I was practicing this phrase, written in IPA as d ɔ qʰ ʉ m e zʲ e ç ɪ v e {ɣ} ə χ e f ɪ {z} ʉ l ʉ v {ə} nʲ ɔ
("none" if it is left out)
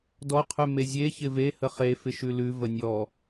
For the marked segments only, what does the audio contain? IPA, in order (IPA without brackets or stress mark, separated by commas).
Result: h, ʃ, ə